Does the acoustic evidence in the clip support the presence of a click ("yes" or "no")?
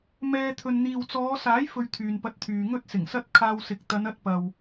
no